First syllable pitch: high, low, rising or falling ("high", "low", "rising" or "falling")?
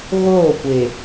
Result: falling